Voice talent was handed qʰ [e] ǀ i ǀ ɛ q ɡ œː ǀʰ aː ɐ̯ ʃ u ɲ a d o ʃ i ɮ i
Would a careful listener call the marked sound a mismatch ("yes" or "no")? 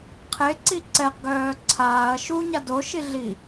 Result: no